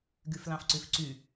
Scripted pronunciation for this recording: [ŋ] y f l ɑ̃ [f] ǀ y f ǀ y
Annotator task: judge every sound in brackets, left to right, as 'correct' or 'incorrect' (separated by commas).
incorrect, correct